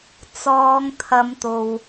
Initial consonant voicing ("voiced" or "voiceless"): voiceless